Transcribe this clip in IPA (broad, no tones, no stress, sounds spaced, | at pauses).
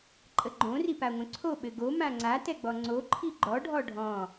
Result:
ǃʼ ə ɡ͡ǃ õ r i p a ŋʷ œ̃ ǀʰ o ɓ ɘ ɡ o m ã ŋ͡ǀ a t ɛ ɡ͡b ɔ ŋ͡ǀ o ǃʰ i ɡ͡ǃ ɔ ɖʱ ɔ ɖʱ ɔ̃